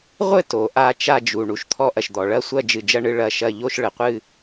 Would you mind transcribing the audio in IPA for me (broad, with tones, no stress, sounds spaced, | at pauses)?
ʁʷ ɘ˥˨ t o˩ ʔ a˥˨ t͡ʃ a˥˨ d͡ʒ u˩ ɳ u˩ ʃ t̪ʰ ɔ˥˨ ʔ ɐ˩ ʃ d̪ ɔ˩ ɭ ɐ˥˨ sʷ ɐ˥˨ d͡ʒ ɨ˩ d͡ʒ ɐ˥˨ ɳ ɨ˥˨ ɭ ɐ˥˨ ʃ ɐ˥˨ ʎ o˥˨ ʃ ɭ ɘ˩ qʷ ɨ˥˨